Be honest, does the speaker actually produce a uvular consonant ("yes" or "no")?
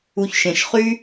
yes